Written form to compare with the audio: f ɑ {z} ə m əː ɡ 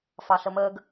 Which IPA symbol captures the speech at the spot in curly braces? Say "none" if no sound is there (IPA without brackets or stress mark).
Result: ɬ